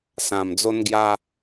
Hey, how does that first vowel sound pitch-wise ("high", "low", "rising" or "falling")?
low